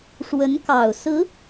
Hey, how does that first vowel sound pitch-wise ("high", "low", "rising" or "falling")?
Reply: rising